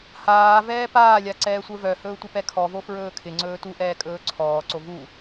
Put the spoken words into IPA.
haː vɛːpaːlʲa ǀɛːsʷə˞vœhɵː tʷɪpɛkʰɔvo fɹɵːkʰɪŋ͡ǀɵː tuʔɛː kʼɵːǀʰɔːǀo vu

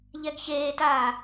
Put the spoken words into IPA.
ʎɛɡçeːtaː

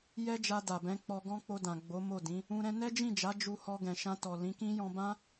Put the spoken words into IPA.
jɛ˦d͡ʒa˧ da˨bɛ̃˨˦k͡pɔ˧ɡɔ̃˦ k͡po˧dã˨ ɡ͡bo˨˦ mo˦˨dĩ˨˦ | ũ˧ɾɛ̃˦ nɛ˦d͡ʒĩ˦˨d͡ʒa˨˦ d͡ʒu˧hɔ˧ɡɛ̃˨ʃã˧ tɔ˨lĩ˨˦kĩ˦ jɔ̃˧bã˦

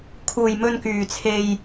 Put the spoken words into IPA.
kʰuː˨jmɵ˧nkyː˨t͡sʰe˧j

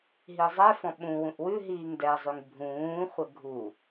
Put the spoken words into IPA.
ɦizˤɛfɔ̃ ɓũwũʔ wʉ ɦiːŋdɛzˤʉŋ bʱũːχʷɛ ɡʱu

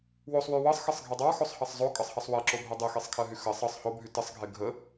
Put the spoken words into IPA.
wosˤwy wɤsˤxɤsˤɡʱe dˤɑxosˤhɑsˤ zˤokʼɤsˤhɑsˤ wɜǁobʱɜ dˤexesˤkʰɜɦy xɜsˤ ɤsˤ hobʱy təsˤɡʱe ɡʱə

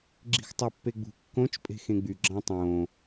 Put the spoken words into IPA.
ɡ͡ǁi̤xtˤæpːeɡ͡bṳ kːõt͡ʃ pʼe̤xẽɡ͡by ɡ͡ǁɑ̃tˤõ

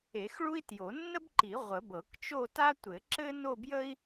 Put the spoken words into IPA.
e˨˩˦xɭu˥i̯tjo˨˩˦ nːə˥bǃi˨˩˦ ʁʷə˨˩˦bɤ˨˩˦k t͡ʃo˥˧ ta˥ tʷɘ˨˩˦ǁɘ˥no˥˧ bjə˥i̯

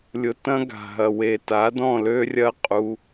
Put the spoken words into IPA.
lʲʊ˨ tɐ̃˧ɡa̤˨ɦɐ˨ we˨ta˨˦dɔ̃˦˨ lø˦rʲɐ˦ qʼu˧

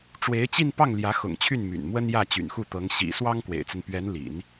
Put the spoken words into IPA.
ʈ͡ʂwe˧˥ɪ̯t͡ɕi˥˧npɑ˥˩ŋ ljä˧˥xʊ̰˨˩ŋt͡ɕʰy˥˩n my̰˨˩nmwə˥n jä˥˩t͡ɕy̰˨˩nxu˥˩t̪ɤ˧˥ŋ ɕḭ˨˩ swɑ˥ŋkwḛ˨˩ɪ̯t͡sə˦npɥɛ˧˥n lḭ˨˩˦n

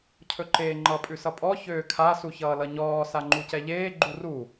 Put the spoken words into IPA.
cʰɵǃeːŋ͡ǃʌ pʼʉsʌpʼɔ çøːkʰa suçʌːlʌɲɔː saŋ͡ǃucɛʎeː ɡ͡ǃuru

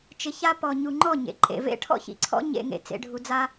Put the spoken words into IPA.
t͡ʃɪ˧ça˦ pɔ˨ɲu˨ŋ͡ǃɔ˦˨ ɲḛ˨ǃʼḛ˨vḛ˦ ʈʰɔ̰˦çḭ˨ǀʰɔ̰˦ ɲḛ˧ŋḛ˨ t͡sḛ˧ɖʱu˧d͡za˦

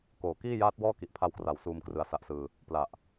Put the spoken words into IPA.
koː˩˦ kiː˥˩jaː˦˥t̚wɔː˥˩ ki˨˩ʔpʰa˧wkra˩˦w suː˧m krɯ˧a̯sa˦˥ʔsɯː˧ | pla˨˩ʔ

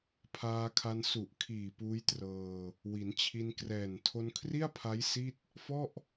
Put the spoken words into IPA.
pʰaː˧kʰa˧n su˨˩ʔ kʰiː˨˩puː˦˥j trɤː˧ | wi˩˦nt͡ɕʰi˧nkrɛː˨˩n tʰo˧nkʰri˥˩a̯pʰa˦˥j si˥˩t̚ | fɔ˥˩ʔ

